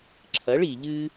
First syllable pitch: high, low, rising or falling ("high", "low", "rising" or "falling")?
rising